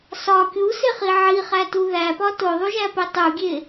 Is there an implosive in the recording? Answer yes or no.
no